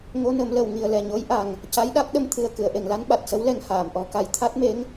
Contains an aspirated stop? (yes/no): yes